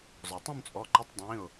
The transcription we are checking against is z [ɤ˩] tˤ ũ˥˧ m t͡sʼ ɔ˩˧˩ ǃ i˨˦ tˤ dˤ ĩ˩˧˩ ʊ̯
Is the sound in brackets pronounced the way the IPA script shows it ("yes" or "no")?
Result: no